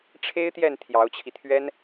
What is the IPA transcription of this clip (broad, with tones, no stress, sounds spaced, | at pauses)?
ʈ͡ʂʰ e˥ ɪ̯ t̪ j ɛ˥˩ n t̪ʰ j ɑ˧˥ ʊ̯ t͡ɕʰ i˧ t̪ʰ ɥ ɛ˥ n